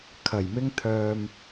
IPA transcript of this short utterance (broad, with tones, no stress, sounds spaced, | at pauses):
kʰ ɐ˨˩ j m ɪ˧ ŋ t̪ʰ œː˨ m